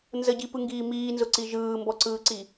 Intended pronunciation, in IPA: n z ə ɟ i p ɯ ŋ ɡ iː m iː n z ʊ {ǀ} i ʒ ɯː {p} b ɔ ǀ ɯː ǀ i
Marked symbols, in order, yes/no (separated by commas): yes, no